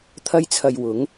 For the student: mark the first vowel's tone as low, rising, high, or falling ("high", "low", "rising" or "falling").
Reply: high